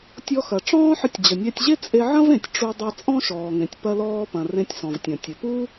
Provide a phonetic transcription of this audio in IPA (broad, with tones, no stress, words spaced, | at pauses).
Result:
tʲɔ˧xɐ˩ ʈ͡ʂɔ̃ː˥ħə˧tʲ d͡ʑə˩nʲæ˧tʲʑe˥ t͡sʼe˧ʕɐ̃˥vẽ˩tʲ ʈ͡ʂu˧ dˤe˧t͡sʼɔ̃˥ʃɔː˩ŋẽ˩tʲ pɐ˧lɔː˧pɐ̃˩ rẽ˧tʲsɔ̃˩vtʲɐ̃˩ tʲə˩pu˥